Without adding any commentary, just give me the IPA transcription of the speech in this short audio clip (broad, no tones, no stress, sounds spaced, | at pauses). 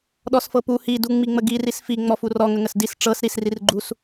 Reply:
ɗ ɔ s f ɤ p u h i d u ŋ͡m i ŋ͡m ə ɡ i r i s f i ŋ͡m ɔ f u r ɔ ŋ ə ŋ ə s d i s ʈ͡ʂ ɤ s ɾ i s r i r ɡ͡ǃ u s